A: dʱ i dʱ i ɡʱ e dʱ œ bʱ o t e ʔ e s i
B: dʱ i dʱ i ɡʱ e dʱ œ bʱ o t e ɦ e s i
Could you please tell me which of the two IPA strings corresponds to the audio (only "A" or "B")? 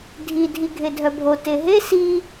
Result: B